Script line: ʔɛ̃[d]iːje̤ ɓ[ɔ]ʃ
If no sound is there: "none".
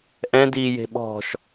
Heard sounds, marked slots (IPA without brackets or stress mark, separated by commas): d, ɔ̤